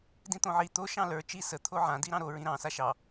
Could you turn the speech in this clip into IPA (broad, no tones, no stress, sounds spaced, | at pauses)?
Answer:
d ĩ t̪ õ ʕ i t̪ o ʃ ɑ̃ l ə˞ t͡ʃ i s ə t̪ʰ o ʕ ã d i ɾ ɑ̃ ɾ o ɹ ĩ ɾ ɑ̃ s a ʃ ɑ